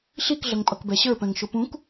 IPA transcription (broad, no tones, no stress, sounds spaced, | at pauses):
ɬ i k ɮ ʌ ŋ pʼ ʌ k b ɛ ɕ ə˞ p ɛ̃ ŋ ʃ ʊ p ũ k